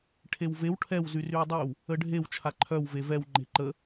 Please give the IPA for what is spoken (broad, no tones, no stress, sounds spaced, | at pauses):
ʈʰ e w v e w ʈʰ ɛ w z y r y w dˤ y w | ə ɖʱ e w t͡ʃʰ a ǃʰ œ w v e v ɛ w ŋ͡ǃ e̤ ǃ ə